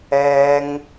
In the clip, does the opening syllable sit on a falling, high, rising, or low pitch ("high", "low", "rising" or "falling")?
high